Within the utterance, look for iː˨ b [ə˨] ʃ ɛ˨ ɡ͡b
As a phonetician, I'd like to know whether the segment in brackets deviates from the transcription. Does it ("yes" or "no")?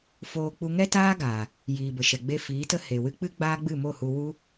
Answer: no